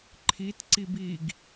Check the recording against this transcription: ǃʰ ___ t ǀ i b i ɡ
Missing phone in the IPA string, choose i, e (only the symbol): i